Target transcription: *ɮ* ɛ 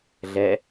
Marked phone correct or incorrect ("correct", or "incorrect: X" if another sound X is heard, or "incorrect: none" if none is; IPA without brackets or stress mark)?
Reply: correct